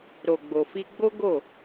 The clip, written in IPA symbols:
ɾo˨ɡ͡bo˨fi˧ ɡ͡bo˦ɡo˦˨

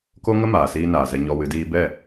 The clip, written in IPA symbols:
ko˦ŋə˦ maː˨siː˦naː˨ zɛ˧ɲɔ˧wɨ˨˦diː˦ bɛ˦˨

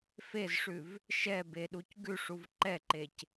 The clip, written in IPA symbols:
fezʂʉv | ʃɛbeɗuc ɡʉʂuv ǃɛǃec

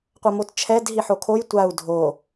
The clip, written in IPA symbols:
qʷʌmott͡ʃʰɛd ɦiħokʰoj tʷau̯ dʱo

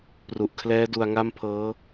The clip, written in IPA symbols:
pru˨˩ʔkʰlɛː˦˥ du˧a̯ŋa˥˩mpʰɤː˦˥

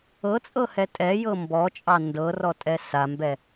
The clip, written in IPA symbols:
ɤt͡sʼɤhɛ tʼɛjɤ mbɔt͡ʃʼɑ ndɤrɔtʼɛ sambɛ

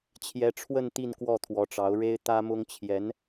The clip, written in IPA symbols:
t͡ɕʰjɛ˧˥ʈ͡ʂʰwə˥˧n t̪i˥˧nkwɔ˥˩t̪ʰwɔ˧˥ʈ͡ʂɑ˧˥ʊ̯ ɻe˥ɪ̯t̪ä˥mʊ˥ŋ t͡ɕʰjɛ˧˥n

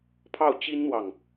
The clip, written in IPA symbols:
pʰɑ˥˩ʊ̯t͡ɕi˥nn̪wɑ˨ŋ

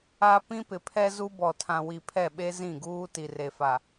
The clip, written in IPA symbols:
a˦ pĩ˦pɪ˨pʰɛ˦ zu˦bɔ˨ tʰã˨wi˨pʰɛ˦˨ɓe˦ zĩ˦˨ɡuː˦ ti˨re˨fa˨

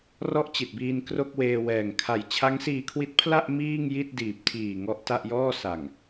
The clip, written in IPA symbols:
rɔ˥˩ʔt͡ɕi˨˩t̚biː˧n kro˥˩k̚weː˧wɛː˨˩ŋ kʰa˨˩j t͡ɕʰa˦˥ŋsiː˧kʰwi˦˥t̚pʰla˥˩ʔ miː˥˩ŋji˥˩t̚diː˨˩p̚tʰiː˨˩ ŋɔ˦˥ʔta˥˩ʔjɔː˥˩ sa˨˩ŋ

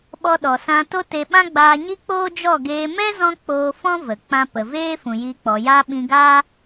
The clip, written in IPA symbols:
ɓɔ˧ɗɔ˨ sã˧ to˦te˧ ɓã˦ɡ͡baː˧ɲi˦ k͡poː˦d͡ʒɔ˦˨ɡeː˧ mɛ˦zɔ̃˧ k͡poː˧fɔ̃˦ və˨ k͡pã˧pə˨ veː˦ fũ˨ji˧k͡pɔ˨ja˦ ɓĩ˧ɡaː˦

